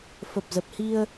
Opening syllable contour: low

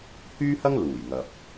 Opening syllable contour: high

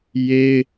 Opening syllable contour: high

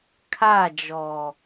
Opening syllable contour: falling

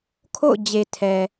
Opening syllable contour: falling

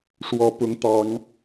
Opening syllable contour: rising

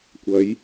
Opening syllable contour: rising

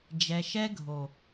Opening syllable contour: low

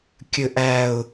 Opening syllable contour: low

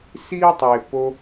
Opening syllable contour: high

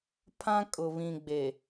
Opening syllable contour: high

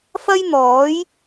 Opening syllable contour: high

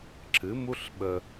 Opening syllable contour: rising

